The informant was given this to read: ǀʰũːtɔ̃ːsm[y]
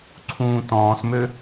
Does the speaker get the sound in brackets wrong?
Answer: yes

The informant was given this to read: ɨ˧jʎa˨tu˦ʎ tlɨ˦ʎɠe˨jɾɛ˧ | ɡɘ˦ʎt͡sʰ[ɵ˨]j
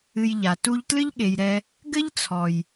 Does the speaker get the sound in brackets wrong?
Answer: yes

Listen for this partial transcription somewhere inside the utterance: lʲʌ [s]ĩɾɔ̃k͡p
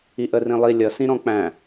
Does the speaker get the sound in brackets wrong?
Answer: no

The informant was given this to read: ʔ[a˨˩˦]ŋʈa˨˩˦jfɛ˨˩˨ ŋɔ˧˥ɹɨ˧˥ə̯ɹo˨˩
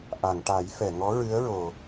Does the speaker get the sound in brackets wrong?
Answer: yes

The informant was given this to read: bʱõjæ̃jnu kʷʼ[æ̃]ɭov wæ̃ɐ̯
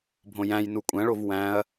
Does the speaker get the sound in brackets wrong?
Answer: no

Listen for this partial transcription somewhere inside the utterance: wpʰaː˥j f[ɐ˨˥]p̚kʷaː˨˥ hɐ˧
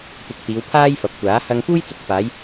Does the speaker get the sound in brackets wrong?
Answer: no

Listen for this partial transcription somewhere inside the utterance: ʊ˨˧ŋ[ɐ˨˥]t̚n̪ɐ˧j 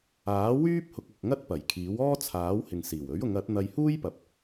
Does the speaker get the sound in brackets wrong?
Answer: no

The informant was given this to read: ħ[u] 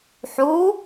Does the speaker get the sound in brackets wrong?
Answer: no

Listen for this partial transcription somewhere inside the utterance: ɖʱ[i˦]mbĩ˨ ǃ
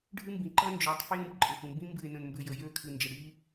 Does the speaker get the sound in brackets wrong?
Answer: yes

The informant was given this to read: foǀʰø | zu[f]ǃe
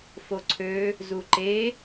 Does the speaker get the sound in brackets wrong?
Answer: yes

